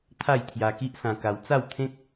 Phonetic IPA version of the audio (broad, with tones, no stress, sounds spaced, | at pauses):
t̪ʰ a˥˧ j t̪ʰ j a˧ k i˦ ʔ s ã˧ k a˧ w t͡s a˥˧ w t̪ʰ ẽ˦ k̚